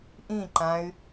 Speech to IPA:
ʔ ĩ ǃ ã y̯

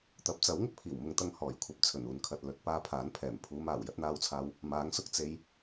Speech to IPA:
t̪ ɐ˨˥ p̚ t͡s ɐ˨˥ w ŋ ɪ˧ k̚ pʰ iː˨˩ w m ʊ˨ ŋ t̪ ɐ˧ ŋ h ɔː˨˩ j kʷʰ ɐ˨ p̚ t͡sʰ ɵ˨˩ n uː˨ n kʰ ɐ˨ t̚ l ɵ˨˥ t̚ p aː˧ pʰ aː˨˥ n pʰ ɛː˨˩ m pʰ uː˨˧ m aː˨˩ w j ɐ˧ t̚ n̪ aː˧ w t͡sʰ aː˧ w | m aː˨˥ ŋ s ʊ˧ k̚ t͡s e˧ j

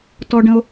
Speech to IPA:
t ɔ˧ ɖ ə̃˧ o̯

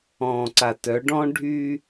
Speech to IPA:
ɔ̃ː˨ ǀ a˨ t œ˨˦ ɖ ɔ̃˦ ɖʱ y˦

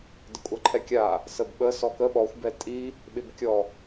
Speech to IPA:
d ə kʷʼ a ǃʰ ɛ kʲ a | s ə b ɓ ə s ɔ k ə ɓ ɔ xʷ b ɛ tʼ i | ɓ ɪ b kʲ ɔ

